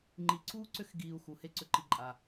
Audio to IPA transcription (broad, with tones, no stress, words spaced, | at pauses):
ŋ͡ǃi˨ǀuː˥ǀʏ˦xɡiː˨u̯ xu˩ he˦ ǀʏ˨ǃi˨ ǃʼa˩